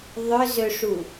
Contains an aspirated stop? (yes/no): no